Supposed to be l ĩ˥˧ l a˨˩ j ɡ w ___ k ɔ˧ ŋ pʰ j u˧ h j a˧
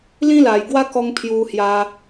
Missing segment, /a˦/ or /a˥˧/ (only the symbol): a˥˧